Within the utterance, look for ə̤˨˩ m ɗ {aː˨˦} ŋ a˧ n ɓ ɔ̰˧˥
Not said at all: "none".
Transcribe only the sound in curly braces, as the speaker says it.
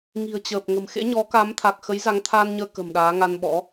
aː˨˦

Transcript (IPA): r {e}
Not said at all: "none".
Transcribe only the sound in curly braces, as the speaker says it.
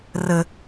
ɘ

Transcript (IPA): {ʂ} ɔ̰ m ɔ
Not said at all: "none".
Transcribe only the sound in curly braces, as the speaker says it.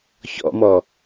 ç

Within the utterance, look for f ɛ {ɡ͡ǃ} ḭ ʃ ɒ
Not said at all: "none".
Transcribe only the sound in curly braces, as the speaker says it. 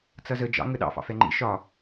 ŋ͡ǃ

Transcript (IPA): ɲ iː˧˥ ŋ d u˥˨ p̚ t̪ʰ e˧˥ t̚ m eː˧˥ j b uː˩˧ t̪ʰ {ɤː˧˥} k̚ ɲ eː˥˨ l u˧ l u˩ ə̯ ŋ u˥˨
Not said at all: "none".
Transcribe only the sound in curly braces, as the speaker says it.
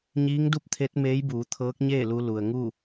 ɤː˧˥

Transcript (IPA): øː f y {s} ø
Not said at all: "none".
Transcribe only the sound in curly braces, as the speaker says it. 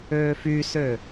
s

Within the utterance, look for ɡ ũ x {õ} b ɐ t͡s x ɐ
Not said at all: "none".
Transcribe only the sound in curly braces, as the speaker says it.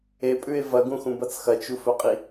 ũ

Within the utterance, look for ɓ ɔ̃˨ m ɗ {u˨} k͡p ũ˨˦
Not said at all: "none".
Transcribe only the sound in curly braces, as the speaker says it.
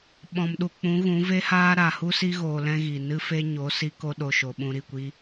u˨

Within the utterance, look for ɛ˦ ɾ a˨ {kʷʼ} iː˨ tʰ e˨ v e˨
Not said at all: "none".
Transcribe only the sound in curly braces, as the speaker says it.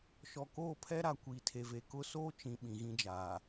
kʷ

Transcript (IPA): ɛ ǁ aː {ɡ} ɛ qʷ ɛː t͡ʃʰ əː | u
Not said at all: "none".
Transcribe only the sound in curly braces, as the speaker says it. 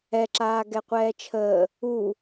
ɡ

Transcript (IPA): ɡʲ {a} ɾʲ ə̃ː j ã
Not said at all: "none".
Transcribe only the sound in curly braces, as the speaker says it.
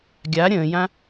a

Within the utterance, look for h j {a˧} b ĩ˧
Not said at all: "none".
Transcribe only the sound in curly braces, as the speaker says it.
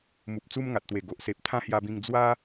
a˧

